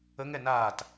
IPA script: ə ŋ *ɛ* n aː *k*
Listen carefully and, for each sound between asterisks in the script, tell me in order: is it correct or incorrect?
correct, incorrect

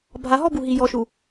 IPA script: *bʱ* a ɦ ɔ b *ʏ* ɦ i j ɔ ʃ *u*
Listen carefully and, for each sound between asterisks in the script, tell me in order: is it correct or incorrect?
correct, incorrect, correct

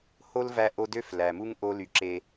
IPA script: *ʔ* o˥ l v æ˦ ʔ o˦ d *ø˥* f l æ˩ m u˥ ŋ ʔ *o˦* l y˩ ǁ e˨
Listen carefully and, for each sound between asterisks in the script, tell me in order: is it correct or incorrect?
incorrect, correct, correct

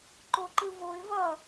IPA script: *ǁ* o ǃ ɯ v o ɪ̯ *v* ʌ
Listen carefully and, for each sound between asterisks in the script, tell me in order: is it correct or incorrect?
incorrect, correct

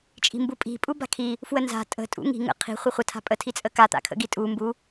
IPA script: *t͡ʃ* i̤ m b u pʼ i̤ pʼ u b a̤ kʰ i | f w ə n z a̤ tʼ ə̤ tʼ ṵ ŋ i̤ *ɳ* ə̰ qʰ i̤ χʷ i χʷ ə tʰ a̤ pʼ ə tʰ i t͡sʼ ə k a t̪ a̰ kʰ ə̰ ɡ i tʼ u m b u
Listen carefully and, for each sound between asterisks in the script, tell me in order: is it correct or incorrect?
incorrect, incorrect

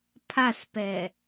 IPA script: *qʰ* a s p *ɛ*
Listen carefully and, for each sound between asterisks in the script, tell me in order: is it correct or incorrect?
incorrect, correct

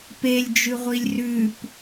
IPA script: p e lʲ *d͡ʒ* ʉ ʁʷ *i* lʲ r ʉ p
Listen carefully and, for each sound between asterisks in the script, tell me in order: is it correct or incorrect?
correct, correct

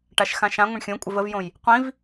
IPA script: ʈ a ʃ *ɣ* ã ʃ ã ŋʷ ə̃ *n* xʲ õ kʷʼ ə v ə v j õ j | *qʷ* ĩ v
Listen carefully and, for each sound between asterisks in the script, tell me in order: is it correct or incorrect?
incorrect, incorrect, correct

